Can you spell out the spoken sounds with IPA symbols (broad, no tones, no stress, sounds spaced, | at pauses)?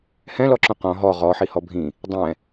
h ɛ̃ l ɔ ǁ ũ q ɔ̃ ɦ ɔ ʁ ɔ ħ i h ɔ bʱ ĩ | dˤ ɛ̃